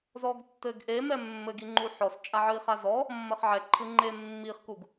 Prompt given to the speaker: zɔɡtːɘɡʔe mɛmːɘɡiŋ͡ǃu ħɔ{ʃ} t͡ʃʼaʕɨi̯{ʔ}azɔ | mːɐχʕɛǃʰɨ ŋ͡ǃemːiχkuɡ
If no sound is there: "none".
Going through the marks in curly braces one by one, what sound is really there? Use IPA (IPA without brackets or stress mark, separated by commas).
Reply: s, χ